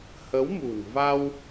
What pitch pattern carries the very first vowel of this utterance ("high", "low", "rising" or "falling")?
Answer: rising